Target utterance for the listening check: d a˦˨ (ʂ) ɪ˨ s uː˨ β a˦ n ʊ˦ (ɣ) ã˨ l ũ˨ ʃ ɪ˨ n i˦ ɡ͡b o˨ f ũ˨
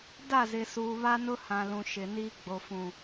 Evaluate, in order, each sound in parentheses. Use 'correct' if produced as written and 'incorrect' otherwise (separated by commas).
incorrect, incorrect